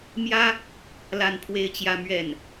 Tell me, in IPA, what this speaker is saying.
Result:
m j ä˥ | l a˥˧ n pʰ w e˥˧ ɪ̯ t͡ɕ j ä˥˧ m ɥ ɛ˥˩ n

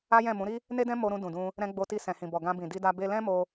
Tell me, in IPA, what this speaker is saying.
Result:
a˦ j ɛ̃˦˨ m ũ˨˦ ɾ i˦ | n e˦ d ɛ̃˦ m o˧ ɾ ũ˧ d ũ˨ d ũ˧ | ɾ ɛ̃˧ ɡ͡b o˧ t i˧ s ɛ̃˨ h ĩ˨ b ɔ˨ ɡ ã˧ b ĩ˨ d i˧ d a˧ b e˧ l ɛ̃˦ m o˧

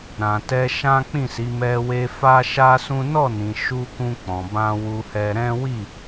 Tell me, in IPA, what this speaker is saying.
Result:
ɾ ã˨ t ɛ˧ ʃ ã˦ k͡p ĩ˦˨ s i˨˦ m ɛ˧ w e˧ f a˦ ʃ a˦ s ũ˦ n ɔ˦˨ n ĩ˨ ʃ u˧ k ũ˧ k͡p ɔ̃˨ b ã˧ w u˧ h ɛ˧ ɾ ɛ̃˦ w i˦˨

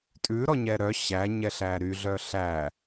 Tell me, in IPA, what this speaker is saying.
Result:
tʼ ʉ ɾ ɔ ɲ ɛ ɾ œ ɕ æ ɲ ɛ ɬ æ ɾ y ɮ œ ɬ æ

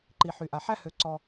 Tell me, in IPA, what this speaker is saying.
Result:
ǃ i˨ ħ y˨ ʔ a˨ ħ æ˦ h ø˨˦ ǀ ɔ˧

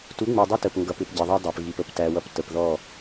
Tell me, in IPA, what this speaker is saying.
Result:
t u˨˦ ŋ͡m u˨ dˤ ʌ˦ t ə˨ p ŋ ɡ ʌ˨ p ɪ˨ p ɟ ɪ˨ ðˤ ɑ˦ dˤ æ˨ p ɣ i˨ p ə˨ p t æ˨ w ʌ˨ p t ə˨ p ð ɔ˦˨

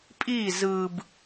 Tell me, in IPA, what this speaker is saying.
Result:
pʼ i z ɯ b

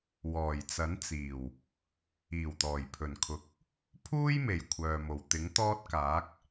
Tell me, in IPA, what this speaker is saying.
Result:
w ɔː˨˩ j t͡s ɐ˨˥ n t͡s iː˨˩ w | iː˨˩ w t̪ ɔː˨˩ j pʰ ɵ˨˩ n kʰ ʊ˨˥ k̚ | pʰ uː˥ j m e˨˩ j kʷʰ œː˨ m o˨˩ w t̪ ɪ˨˥ ŋ t̪ ɔː˥ t̚ k aː˨˥ k̚

